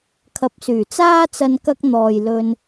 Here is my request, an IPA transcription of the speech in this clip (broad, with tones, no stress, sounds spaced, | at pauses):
kʰ ɐ˨ p̚ s yː˨˩ t͡s aː˥ t͡s ɐ˧ n k ɐ˧ k̚ n̪ ɔː˨ j l ɵ˧ n